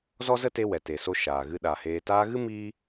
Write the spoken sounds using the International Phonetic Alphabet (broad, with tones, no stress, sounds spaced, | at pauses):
z ɔ˦ z ə˦ t e˧ w ɛ˨ t e˨ s o˧ ʃ aː˨ ɣ ɨ˧ ɗ a˨ h eː˧ t aː˧ ɣ ɨ˦ m iː˦